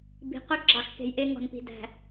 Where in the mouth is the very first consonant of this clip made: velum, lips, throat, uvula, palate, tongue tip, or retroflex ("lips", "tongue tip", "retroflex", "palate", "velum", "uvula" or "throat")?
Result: lips